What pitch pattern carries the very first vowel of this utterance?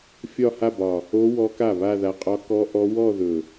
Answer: falling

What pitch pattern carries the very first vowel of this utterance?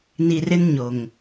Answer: low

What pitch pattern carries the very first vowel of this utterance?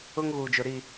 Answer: high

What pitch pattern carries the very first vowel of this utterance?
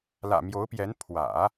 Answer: low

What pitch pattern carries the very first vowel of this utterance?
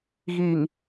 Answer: low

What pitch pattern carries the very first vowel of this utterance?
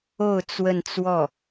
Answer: falling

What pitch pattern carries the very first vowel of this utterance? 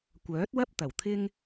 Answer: rising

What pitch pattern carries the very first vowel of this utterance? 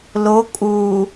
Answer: rising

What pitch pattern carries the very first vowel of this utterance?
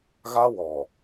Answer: high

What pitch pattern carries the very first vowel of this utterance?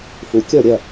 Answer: low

